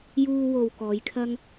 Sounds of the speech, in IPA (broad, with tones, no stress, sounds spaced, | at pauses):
j uː˧ w o˨ w k ɔː˨˧ j kʰ ɐ˥ ŋ